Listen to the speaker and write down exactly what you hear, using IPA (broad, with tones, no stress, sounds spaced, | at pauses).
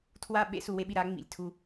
tʰ w a˦ ɓ ḛ˦ s u˨ w e˦ ɓ i˨ ɾ a˨˦ ŋ͡m ḭ˨ lʲ tʰ u˦